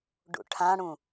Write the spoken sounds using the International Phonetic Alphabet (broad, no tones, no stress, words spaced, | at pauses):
ɖṵʈʰãɽũ